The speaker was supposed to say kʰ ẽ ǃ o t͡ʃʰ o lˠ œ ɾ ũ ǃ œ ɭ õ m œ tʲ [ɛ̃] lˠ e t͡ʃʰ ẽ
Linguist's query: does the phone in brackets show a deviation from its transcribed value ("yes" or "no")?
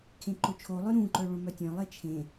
yes